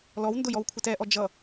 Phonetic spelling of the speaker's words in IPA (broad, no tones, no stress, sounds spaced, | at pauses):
l ɔ w n d ʊ j ɔ w kʷʰ ɪ t ɛ ʔ ɔ d͡ʒ ʌ